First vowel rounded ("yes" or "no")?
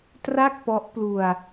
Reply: no